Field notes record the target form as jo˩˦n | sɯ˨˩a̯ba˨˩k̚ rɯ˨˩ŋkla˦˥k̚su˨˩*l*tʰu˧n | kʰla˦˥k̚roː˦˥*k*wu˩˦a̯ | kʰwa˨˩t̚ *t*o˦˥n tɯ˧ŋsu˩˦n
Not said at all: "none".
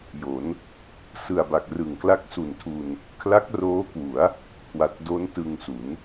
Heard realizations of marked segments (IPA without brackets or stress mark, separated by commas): n, k, d